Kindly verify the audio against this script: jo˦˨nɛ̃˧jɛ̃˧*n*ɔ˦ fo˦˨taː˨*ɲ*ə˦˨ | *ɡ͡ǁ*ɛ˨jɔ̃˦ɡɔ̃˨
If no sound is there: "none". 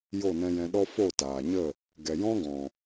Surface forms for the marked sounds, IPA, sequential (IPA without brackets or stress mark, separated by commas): ɗ, ɲ, ɡ